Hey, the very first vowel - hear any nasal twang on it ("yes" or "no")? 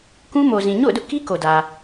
yes